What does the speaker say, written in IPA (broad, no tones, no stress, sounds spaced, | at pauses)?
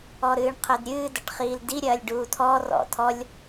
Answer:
ɔ ɾ ɨː ɳ qʰ ɘ d ɾʲ ɨː d ɐ ʈ χ iː l d i ɾʲ ɐː lʲ ɖ uː tʰ ɔ r ɔ̰ tʰ ɔ lʲ